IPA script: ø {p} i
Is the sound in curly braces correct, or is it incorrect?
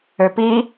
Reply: correct